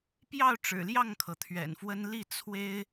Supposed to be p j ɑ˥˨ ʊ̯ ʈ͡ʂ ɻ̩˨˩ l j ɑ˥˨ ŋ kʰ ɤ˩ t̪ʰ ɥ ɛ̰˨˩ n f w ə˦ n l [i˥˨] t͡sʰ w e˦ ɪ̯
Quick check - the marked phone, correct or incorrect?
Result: correct